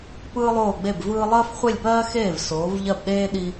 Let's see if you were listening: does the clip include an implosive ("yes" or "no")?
yes